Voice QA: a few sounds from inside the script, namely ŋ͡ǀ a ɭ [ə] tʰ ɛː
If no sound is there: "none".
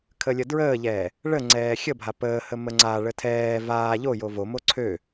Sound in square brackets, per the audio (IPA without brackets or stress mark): ə